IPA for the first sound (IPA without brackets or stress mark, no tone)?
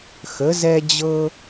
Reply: x